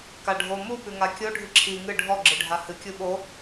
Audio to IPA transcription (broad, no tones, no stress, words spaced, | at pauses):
kaɖʱo mu pʉŋakʲo ɖʱɨǁʰi ŋɨ ɖʱɔ ɡ͡ǁɨɖʱahɨ kʲuɓo